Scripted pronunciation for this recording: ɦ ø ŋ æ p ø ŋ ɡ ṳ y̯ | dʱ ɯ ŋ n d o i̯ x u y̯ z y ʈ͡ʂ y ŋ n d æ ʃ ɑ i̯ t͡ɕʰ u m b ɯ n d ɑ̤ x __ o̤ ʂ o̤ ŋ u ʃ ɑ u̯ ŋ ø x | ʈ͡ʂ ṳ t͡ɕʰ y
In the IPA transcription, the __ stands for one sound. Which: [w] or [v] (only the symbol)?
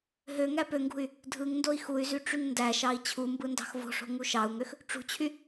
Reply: v